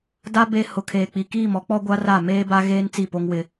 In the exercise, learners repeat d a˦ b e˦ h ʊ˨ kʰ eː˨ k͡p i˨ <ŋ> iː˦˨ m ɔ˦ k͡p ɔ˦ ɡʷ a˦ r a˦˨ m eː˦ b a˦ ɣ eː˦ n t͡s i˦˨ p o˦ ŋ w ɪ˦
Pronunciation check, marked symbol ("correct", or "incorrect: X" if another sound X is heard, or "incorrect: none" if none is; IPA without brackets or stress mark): incorrect: k